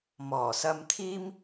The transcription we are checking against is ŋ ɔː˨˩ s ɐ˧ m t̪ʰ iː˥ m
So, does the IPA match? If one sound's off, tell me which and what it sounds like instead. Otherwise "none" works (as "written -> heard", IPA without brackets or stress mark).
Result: ŋ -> m